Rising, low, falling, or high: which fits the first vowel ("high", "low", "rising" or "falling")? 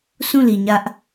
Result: falling